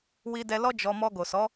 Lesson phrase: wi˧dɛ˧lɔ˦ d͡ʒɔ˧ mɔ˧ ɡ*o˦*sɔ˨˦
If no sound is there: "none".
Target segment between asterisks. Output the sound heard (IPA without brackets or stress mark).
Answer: o˨